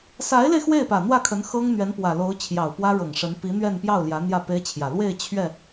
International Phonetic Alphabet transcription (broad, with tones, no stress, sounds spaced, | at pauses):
s a˧˥ ɪ̯ l e˧ ɪ̯ x w e˥˩ ɪ̯ p ä˨˩ n̪ w ä˥˩ kʰ ə˧˥ n x ɤ˥ ŋ n̪ ɥ ɛ˧˥ n p w ä˨˩ l o˧˥ ʊ̯ t͡ɕʰ j ɑ˨˩ ʊ̯ p w ä˥ ɻ ɤ˨˩ ŋ ʂ ə˧˥ n p i˧˥ n̪ ɥ ɛ˥˧ n p j ɑ˥˩ ʊ̯ l j ä˧˥ n̪ j ä˥˩ p e˥ ɪ̯ t͡ɕʰ j ä˨˩ l w e˥˧ ɪ̯ t͡ɕʰ ɥ ɛ˥˩